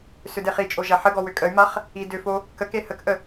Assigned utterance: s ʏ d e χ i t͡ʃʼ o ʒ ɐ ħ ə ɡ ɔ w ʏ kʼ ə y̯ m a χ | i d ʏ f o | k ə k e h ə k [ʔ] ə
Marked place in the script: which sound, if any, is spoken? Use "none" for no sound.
ʔ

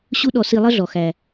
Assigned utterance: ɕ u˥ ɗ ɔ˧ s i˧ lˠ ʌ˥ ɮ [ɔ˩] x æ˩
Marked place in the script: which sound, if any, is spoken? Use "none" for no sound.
ɔ˩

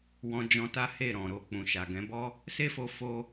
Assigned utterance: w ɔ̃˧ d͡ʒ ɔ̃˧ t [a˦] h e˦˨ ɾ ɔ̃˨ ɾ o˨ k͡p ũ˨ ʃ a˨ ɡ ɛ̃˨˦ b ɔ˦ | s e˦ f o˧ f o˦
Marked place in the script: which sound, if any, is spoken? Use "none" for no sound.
a˦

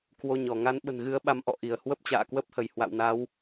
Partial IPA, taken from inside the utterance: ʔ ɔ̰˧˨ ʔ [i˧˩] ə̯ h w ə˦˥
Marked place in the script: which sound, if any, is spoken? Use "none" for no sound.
i˧˩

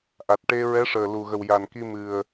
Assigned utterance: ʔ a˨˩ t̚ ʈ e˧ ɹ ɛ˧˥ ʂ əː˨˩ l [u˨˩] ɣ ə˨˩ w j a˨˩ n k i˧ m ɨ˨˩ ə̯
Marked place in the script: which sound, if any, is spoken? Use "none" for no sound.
u˨˩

